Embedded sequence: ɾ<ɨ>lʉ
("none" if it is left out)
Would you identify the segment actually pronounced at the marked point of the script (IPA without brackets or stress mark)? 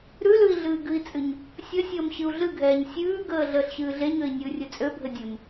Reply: ʉ